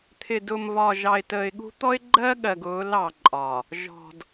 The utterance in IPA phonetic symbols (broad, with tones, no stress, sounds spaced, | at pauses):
t̪ʰ ɪ˨ d ʊ˨ m v ɒ˨ ʒ ɑ˨ ɪ̯ t əː˨ ɪ̯ ɠ ṳ˦ t̪ ɔ˦ ɪ̯ ɡ͡ǃ ɜ˦ ɠ ɜ˨ ɡ ʊː˨˦ l ɑ˨ ǃʼ ɒ˨ | ʒ ɔ̤˨ d